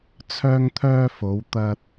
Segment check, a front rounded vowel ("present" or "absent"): present